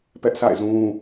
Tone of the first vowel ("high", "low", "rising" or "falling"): high